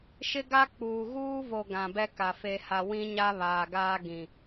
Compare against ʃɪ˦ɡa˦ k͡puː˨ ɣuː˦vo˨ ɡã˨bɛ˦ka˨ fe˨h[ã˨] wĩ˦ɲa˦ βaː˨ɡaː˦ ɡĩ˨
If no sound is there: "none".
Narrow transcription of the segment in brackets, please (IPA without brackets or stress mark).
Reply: a˨